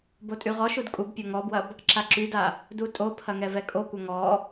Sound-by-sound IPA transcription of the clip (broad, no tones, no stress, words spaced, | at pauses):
botʼyʁɔʃud kʼubpʲo ŋɔbwɐb | ǁaǁyda | dutʼopʰɐ ŋɛvɛkʼokʷɐ ŋɔ